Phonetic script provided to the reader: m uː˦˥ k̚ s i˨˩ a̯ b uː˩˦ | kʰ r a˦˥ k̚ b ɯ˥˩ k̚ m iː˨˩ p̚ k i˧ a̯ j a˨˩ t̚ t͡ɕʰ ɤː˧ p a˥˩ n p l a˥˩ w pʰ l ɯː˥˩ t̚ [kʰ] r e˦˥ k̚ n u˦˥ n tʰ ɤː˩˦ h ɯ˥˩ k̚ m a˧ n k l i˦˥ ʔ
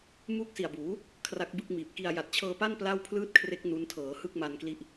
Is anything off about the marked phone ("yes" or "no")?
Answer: no